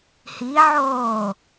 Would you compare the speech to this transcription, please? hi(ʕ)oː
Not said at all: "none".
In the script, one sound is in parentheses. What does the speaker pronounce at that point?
ʕ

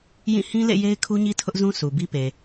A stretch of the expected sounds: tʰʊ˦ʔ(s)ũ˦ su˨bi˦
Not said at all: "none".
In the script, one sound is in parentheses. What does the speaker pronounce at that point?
z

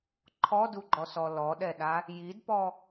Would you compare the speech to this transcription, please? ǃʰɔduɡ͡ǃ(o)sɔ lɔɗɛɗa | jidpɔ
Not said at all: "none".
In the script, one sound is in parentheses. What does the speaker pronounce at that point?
ɔ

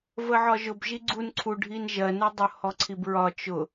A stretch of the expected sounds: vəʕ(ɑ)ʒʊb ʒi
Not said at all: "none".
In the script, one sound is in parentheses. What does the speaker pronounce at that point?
ɒ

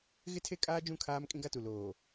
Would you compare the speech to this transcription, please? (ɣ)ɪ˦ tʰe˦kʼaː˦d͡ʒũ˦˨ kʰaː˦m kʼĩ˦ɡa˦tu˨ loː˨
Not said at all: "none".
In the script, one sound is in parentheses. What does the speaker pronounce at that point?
ɣ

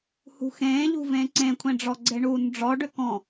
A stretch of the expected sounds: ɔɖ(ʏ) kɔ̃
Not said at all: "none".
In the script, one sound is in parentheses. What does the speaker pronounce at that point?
ʏ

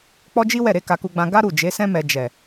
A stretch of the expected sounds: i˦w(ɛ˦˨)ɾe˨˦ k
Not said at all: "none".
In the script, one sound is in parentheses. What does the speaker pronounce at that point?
ɛ˦˨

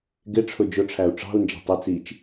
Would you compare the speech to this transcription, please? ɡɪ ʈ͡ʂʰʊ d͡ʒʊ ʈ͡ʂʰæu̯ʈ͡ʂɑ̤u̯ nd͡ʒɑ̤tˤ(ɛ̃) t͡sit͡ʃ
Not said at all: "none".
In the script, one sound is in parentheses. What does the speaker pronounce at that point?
ɛ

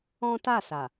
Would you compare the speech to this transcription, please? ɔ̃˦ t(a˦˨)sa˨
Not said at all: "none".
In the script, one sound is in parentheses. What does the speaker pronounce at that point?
a˦˨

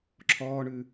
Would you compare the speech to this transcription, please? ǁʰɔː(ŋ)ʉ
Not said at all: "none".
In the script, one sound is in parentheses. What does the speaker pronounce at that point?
ɳ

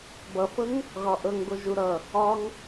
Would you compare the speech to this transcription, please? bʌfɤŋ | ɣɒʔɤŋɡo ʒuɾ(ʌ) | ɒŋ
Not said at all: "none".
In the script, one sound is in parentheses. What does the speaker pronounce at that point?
ʌ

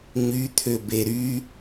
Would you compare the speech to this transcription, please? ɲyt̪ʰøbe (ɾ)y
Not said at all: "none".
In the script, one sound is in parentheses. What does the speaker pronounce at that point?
ɾ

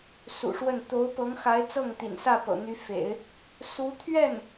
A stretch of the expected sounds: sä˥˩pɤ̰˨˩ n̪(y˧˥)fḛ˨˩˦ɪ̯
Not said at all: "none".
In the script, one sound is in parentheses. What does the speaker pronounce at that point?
y˧˥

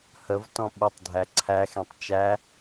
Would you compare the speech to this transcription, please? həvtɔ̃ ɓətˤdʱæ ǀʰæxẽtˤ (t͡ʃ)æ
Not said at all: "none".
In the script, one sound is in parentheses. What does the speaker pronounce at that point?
t͡ʃ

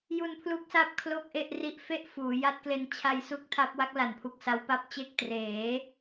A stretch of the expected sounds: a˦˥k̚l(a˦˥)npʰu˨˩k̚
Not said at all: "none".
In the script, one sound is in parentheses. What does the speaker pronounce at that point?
a˩˦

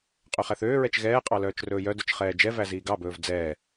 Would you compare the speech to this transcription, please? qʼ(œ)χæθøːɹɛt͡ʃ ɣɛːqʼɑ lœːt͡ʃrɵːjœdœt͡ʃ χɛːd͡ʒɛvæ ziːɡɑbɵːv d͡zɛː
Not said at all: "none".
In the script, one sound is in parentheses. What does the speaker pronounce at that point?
ø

